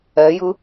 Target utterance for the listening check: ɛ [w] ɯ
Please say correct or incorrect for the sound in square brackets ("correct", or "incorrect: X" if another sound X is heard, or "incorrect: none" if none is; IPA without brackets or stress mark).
incorrect: j